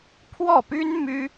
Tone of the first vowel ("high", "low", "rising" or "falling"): falling